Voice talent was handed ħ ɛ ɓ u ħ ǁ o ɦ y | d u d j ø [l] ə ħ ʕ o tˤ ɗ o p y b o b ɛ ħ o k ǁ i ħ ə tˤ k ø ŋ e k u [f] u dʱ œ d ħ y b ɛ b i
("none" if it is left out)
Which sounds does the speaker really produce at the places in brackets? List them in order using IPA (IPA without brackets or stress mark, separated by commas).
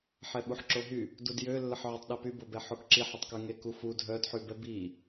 lː, f